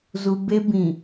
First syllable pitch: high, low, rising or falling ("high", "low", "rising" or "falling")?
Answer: low